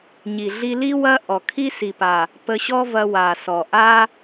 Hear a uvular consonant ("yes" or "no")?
no